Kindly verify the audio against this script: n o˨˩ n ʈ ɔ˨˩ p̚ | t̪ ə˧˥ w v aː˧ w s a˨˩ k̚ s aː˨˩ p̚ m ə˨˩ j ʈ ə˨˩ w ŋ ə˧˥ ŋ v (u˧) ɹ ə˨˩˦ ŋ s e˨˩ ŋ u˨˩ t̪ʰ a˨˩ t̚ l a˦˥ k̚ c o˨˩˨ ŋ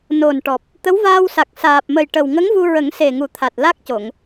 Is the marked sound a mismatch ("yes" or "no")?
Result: no